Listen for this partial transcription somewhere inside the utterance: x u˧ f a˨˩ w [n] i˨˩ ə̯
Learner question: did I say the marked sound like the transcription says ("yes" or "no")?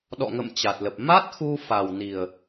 yes